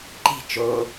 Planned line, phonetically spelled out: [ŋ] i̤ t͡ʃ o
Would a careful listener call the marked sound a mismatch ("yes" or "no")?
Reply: yes